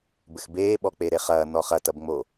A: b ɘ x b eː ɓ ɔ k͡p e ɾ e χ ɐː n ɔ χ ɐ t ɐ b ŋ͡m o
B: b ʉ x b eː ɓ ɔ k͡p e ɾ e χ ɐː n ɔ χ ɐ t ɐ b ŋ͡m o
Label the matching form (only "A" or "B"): A